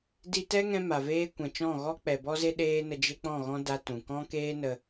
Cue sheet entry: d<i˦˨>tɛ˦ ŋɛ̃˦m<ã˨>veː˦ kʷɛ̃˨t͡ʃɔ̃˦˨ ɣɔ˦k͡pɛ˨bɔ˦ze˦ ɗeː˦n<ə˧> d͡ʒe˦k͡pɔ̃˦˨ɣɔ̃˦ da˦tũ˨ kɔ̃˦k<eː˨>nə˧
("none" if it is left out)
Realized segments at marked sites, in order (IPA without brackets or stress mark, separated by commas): i˧, a˨, ə˧, eː˦